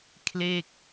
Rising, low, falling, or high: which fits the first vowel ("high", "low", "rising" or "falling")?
falling